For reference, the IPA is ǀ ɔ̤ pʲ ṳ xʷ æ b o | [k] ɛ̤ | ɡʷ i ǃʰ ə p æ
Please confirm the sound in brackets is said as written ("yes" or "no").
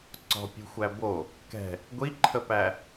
yes